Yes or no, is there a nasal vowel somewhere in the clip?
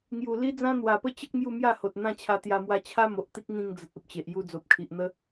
yes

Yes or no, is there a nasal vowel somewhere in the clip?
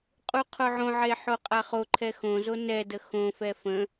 yes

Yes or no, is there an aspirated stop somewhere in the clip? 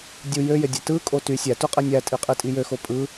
no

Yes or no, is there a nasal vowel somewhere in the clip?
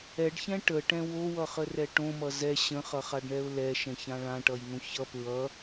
yes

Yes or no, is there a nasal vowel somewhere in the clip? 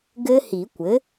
no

